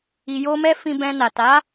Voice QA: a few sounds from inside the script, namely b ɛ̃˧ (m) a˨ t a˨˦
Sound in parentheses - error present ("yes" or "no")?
yes